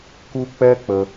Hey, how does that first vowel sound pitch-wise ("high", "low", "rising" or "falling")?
high